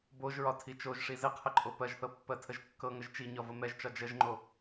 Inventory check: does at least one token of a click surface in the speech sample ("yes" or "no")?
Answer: yes